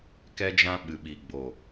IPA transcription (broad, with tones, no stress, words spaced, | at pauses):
kɛ˦d͡ʒã˦ ɓɨ˨ɓi˨ ɡ͡bo˨